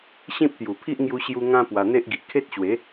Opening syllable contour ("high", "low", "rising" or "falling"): high